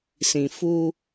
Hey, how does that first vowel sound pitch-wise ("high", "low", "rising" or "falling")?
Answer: low